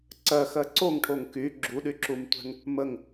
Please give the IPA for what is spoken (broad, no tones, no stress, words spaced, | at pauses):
ǀɜxɜ ǀoŋʈʰoŋ ky ɡ͡ǁuɗyǁumtʷɛ̤ŋ | məŋ